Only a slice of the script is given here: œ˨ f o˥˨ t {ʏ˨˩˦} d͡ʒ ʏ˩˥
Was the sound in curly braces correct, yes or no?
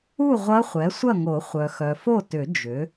yes